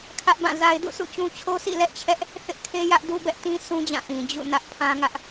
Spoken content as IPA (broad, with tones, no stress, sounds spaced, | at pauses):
kʰ ä˦ ʔ b ã˦˨ z a˦ ɪ̯ d ṵ˦˨ s ṵ˦˨ t͡ɕ ũ˦ t͡ɕʰ o˦ s ḭ˦˨ l ɛ˦ ʔ t͡ɕʰ ɛ˦ ʔ | θ ɪ˦ ʔ kʰ e˦ j ä˦ ʔ d u˦ b ɛ˦ ʔ t ĩ˦ s ũ˦ d͡ʑ ã˦˨ ʔ ĩ˨ d͡ʑ ṵ˦˨ n ä˦ ʔ pʰ ã˦ ŋ ä˦ ʔ